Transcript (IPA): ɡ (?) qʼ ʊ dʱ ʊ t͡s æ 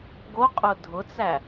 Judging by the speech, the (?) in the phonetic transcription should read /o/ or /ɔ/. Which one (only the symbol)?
o